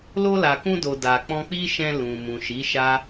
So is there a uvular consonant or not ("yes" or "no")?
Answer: no